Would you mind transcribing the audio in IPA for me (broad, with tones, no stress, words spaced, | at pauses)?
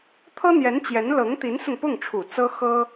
t̪ʰɤ˥n̪jɛ˧˥nt͡ɕjɛ˧˥n lɤ˧˥ŋt̪i˧˥nsʊ˧ŋ pʊ˥˩ŋʈ͡ʂʰu˨˩ t͡sɤ˥xɤ˥